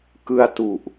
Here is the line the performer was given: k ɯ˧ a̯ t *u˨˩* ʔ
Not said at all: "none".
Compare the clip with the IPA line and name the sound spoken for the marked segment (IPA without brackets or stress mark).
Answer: u˨˩